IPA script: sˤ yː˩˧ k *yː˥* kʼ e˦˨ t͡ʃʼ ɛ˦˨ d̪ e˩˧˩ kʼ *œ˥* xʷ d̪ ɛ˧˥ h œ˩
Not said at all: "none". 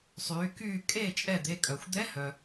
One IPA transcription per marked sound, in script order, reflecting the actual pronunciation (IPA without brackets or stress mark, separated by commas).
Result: yː˦˨, œ˩